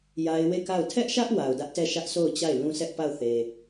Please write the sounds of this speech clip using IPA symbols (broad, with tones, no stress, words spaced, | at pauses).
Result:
ja˦ɪ̯ we˦˨ka˦˨ʊ̯ tʰɛ˦ʔʃä˦ʔ wa˨ʊ̯dä˦ʔtɛ˦˨ ʃä˦ʔso˦˨ʊ̯t͡ɕa˦˨ɪ̯ lũ˦sʰɛ˦ʔpa˦˨ʊ̯ θe˨